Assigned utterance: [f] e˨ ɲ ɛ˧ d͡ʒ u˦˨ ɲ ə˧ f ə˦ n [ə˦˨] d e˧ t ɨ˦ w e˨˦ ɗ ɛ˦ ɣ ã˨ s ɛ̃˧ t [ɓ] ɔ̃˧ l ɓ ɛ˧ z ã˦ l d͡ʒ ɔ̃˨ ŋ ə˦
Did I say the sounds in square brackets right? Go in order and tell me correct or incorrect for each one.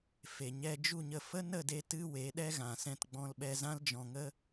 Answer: correct, correct, incorrect

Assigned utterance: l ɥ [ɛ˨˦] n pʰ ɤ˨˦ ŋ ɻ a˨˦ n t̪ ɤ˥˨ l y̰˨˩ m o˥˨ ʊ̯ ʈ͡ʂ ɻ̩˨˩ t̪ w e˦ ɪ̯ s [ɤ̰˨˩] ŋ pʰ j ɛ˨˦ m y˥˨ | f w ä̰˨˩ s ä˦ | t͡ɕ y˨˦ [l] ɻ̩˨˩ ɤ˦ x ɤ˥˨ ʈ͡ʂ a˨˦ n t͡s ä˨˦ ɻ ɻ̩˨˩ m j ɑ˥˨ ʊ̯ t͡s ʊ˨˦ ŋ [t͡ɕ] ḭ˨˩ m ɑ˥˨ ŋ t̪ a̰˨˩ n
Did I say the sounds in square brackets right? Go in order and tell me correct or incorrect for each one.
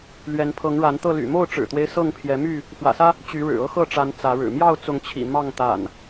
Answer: correct, incorrect, incorrect, incorrect

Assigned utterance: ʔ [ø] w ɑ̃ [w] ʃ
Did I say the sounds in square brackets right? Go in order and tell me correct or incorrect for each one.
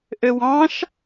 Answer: correct, incorrect

